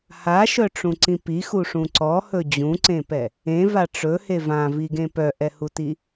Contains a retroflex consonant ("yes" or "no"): yes